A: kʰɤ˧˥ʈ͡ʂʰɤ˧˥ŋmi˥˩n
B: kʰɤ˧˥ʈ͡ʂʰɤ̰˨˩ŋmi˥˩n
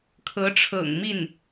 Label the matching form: B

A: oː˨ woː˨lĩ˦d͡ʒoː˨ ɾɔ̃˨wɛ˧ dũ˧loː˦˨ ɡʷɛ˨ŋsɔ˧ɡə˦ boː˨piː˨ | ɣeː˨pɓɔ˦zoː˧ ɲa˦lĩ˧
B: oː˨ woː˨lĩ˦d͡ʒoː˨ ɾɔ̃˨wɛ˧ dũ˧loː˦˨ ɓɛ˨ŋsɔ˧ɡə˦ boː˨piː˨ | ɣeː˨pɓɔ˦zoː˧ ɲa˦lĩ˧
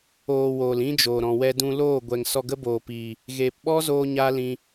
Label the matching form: A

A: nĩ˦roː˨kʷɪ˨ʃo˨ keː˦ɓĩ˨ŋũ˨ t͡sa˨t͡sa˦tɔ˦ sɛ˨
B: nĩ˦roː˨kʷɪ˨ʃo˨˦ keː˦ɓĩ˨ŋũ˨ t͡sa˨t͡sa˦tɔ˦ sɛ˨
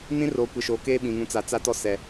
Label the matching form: B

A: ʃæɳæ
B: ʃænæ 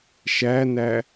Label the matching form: B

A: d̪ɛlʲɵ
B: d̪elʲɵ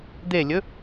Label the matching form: B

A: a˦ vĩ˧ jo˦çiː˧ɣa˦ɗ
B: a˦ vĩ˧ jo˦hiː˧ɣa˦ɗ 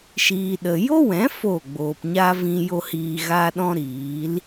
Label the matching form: B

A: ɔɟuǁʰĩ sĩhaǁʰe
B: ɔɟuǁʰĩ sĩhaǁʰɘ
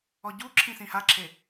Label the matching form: A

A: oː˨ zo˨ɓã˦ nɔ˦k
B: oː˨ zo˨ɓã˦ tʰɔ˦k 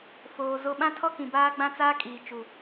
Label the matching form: B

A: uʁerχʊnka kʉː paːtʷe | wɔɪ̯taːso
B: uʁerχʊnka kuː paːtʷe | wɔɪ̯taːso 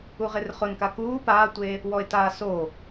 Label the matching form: B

